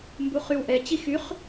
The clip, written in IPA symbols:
mbuχywʔɛ t͡ɕixyχ

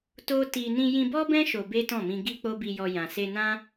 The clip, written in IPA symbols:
to˦ti˧ nĩ˧jĩ˧bɔ˦bɛ̃˦ ʃo˧be˦tɔ̃˦˨mĩ˧ ɡi˦k͡po˦bi˧jɔ˧ jã˨se˧nã˦

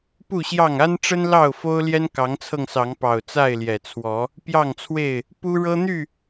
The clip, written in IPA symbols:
pu˥˨ɕjɑ˥˨ŋ a˦nʈ͡ʂə˦n lɑ˥˨ʊ̯fo˦ʊ̯ ljɛ˦nkɑ˨˦ŋt͡sʰɤ˧ŋ sɑ˨˦ŋpɑ˨˩ʊ̯ t͡sa˥˨ɪ̯ljɛ˨˩t͡sʰwɔ˨˦ | pjɑ˥˨ŋt͡sʰwe˥˨ɪ̯ | pu˦ɻɤ˦n̪y˥˨

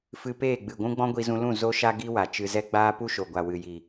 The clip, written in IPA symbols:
fɨ˧peː˦˨ɡ͡bɨ˨ɡʷũ˦ ɡ͡bɔ̃˦ɡʷi˧zũ˧lũ˦˨ zo˦ʃa˦ ɡi˦wa˨ t͡ʃɨ˧zɛ˦ ɡ͡baː˦pu˦ʃo˨ɡʷa˨ wɨ˨ji˨

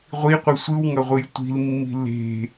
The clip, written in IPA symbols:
ʁʷiqʷɯ sʷɯwŋʌʁʷɯj tʷi̤lmːi̤ le̤

